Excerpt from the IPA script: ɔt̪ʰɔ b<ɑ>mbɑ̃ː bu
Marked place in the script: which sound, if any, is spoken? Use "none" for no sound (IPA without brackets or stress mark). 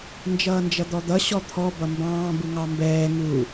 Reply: ʌ